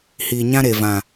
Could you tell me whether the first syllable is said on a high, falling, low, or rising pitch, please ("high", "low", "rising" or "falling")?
low